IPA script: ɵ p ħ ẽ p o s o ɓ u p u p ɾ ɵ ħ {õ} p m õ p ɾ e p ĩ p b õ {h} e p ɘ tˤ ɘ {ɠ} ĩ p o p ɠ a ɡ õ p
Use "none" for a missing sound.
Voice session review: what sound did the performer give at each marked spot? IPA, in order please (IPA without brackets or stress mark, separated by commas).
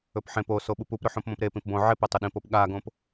õ, ʕ, ɗ